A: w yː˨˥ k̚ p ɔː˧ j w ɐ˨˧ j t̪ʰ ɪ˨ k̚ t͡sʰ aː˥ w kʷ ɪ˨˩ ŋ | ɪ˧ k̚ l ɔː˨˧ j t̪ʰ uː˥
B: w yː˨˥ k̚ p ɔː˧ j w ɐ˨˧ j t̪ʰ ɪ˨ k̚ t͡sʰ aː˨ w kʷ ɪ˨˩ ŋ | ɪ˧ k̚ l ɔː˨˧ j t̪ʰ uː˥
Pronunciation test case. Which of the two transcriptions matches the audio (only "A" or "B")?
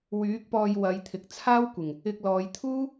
A